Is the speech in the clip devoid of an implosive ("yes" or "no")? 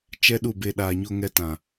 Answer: no